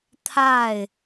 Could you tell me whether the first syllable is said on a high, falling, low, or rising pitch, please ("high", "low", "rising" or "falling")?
falling